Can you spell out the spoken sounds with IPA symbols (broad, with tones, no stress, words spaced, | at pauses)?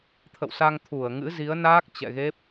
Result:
t̪ʰə̰˧˨wsa˧ŋ t̪ʰu˧˩ə̯ŋɨ̰˧˥ zi˨˦ə̯naː˦˥k̚ t͡ɕɛ̰˧˨ɣe˦˥p̚